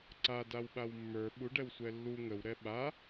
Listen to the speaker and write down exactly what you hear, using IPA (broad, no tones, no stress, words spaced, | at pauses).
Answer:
ǀa dawɓawmːə˞ ɓuɖɛwsʷɛ lːu ŋəwɾɛ ɓa